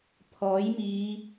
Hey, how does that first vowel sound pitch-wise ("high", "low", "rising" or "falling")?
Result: rising